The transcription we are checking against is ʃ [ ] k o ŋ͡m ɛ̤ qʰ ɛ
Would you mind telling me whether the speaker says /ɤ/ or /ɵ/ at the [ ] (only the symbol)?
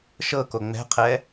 ɤ